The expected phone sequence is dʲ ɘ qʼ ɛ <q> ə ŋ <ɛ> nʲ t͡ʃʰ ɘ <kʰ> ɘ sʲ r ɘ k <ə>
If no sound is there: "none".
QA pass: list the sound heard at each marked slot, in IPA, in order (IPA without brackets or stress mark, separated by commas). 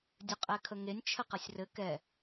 kʰ, e, q, ɛ